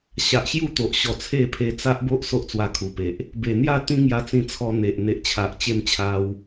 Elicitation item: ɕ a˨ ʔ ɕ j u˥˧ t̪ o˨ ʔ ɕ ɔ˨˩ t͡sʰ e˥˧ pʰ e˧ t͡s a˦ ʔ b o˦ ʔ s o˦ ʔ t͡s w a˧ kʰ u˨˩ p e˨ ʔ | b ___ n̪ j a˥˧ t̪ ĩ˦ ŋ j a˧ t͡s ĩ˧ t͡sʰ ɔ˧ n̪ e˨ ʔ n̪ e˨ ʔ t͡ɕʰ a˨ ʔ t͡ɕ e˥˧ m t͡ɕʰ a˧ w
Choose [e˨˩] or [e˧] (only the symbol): e˨˩